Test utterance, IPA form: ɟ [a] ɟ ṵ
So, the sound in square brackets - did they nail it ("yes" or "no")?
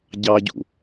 no